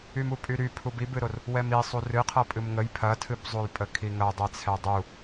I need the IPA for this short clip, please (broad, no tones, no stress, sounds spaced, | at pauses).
y m u pʼ y ɾ y pʰ u b i b ɨ ɾ o r | w ɛ m i sˤ u r ɨ qʰ ʌ pʼ ɨ m ŋ ə j pʰ ɐ tʰ ɨ b zˤ u j pʼ ə kʰ i ŋ ɐ dˤ ɛ t͡sʰ ɛ dˤ u